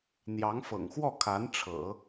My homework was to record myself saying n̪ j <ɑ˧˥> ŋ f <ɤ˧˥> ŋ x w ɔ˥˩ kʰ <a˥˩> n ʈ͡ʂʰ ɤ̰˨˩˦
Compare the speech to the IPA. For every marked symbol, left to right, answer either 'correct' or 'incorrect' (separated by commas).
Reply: correct, incorrect, incorrect